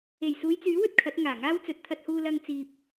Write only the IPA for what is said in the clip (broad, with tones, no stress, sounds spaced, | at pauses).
e˨˩ j s uː˨˧ j t͡s yː˨˥ w ɵ˧ t̚ kʰ ɐ˨˥ t̚ ŋ aː˨˩ ŋ aː˥ w t͡s ɵ˨ t̚ t̪ʰ ɐ˧ t̚ h uː˧ l ɐ˧ ŋ t͡s iː˨ p̚